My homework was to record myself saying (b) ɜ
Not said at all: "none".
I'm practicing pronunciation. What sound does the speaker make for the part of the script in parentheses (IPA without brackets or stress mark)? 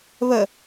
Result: β